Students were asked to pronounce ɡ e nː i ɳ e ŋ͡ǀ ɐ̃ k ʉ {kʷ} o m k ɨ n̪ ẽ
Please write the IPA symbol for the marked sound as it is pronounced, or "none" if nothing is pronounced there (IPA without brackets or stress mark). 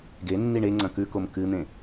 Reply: k